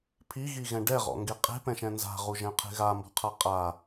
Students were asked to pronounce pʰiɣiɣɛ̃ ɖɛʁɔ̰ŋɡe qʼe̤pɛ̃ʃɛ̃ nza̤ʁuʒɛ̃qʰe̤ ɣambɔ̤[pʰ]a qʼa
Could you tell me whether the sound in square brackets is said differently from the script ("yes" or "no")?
yes